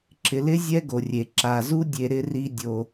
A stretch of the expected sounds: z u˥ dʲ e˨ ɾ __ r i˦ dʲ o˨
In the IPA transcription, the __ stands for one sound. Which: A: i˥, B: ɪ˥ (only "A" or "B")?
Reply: B